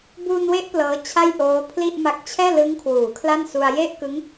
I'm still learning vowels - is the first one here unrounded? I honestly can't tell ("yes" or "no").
no